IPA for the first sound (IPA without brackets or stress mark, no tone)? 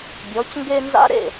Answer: bʲ